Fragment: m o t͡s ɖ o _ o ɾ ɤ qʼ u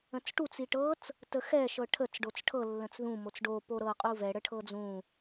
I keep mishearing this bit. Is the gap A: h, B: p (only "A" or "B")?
B